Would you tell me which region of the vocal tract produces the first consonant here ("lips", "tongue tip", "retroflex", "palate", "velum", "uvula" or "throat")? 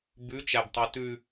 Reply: lips